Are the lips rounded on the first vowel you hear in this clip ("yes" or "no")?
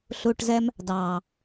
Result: yes